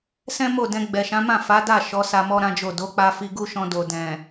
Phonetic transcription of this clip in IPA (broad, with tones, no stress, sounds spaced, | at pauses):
s ɛ̃˦ m o˦˨ d ɛ̃˧ ɡ͡b ɛ˨ ʃ ã˨˦ m ã˦˨ f a˨˦ d a˦˨ ʃ ɔ˨˦ s a˧ m ɔ˦ ɾ ã˦ d͡ʒ o˦˨ d o˨˦ k͡p a˧ f i˧ ɡ u˦ ʃ ɔ̃˧ d o˨ d ɛ̃˨